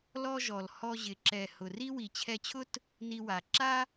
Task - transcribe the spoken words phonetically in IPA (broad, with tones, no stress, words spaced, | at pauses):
lɔ˦ʒɔ˨l hɔ˧ʑɪ˨ ǁɛ˨ hʊ˨ri˦ wi˨t͡ɕʰɛ˧t͡ɕʰʊ˦t | ni˧wa˨ ǁa˦